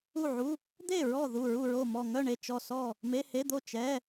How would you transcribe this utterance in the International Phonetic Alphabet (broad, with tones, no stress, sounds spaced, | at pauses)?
u˥˨ ʕ u˧˥˧ | d̪ e˥˨ ɹ ɔ˥˨ ð u˥˨ ɹ u˥˨ ɹ o˥˨ m ɔ˥˨ ŋ œ˥˨ ɳ e˥˨ t͡ʃ ɔ˥˨ s ɔ˥˨ | m e˧˥˧ h e˧˥˧ d̪ o˥˨ t͡ʃ ɛ˧˥˧